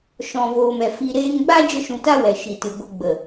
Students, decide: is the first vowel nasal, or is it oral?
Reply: nasal